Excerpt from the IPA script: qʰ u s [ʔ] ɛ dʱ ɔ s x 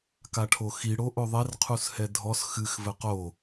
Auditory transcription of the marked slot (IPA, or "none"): h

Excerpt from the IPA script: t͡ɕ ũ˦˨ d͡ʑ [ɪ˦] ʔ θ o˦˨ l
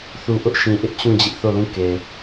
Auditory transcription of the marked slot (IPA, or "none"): ɪ˦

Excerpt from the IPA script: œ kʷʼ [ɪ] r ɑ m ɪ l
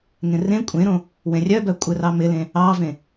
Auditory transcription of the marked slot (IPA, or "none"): ɪ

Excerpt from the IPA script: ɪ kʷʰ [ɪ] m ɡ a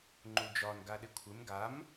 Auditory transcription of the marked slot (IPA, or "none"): ɪ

